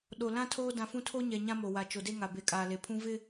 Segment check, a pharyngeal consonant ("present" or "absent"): absent